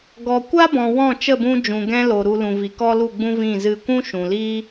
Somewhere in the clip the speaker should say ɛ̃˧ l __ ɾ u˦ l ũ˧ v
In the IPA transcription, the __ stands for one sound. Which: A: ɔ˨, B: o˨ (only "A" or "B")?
B